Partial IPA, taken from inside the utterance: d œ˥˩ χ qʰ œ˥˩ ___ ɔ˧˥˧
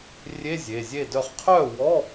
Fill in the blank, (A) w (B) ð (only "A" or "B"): A